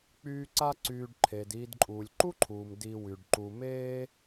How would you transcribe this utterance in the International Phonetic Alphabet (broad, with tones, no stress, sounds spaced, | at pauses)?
k͡p yː˦ ǀ a˥ ǀ yː˨ ɖ ǃʰ e˩ d iː˨ d ǃʼ uː˩ lʲ ǃ u˥ ǃʰ uː˩ m d i˨ w y˩ ɖ ǃ u˨ m eː˥